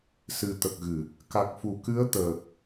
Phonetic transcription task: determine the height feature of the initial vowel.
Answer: high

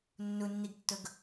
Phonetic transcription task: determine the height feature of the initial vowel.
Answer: high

